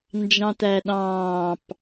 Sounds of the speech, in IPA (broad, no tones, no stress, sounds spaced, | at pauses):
n d͡ʒ ɑ̃ t æ ɗ ɑ̃ː p